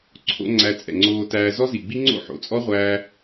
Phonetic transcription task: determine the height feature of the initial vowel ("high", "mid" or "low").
mid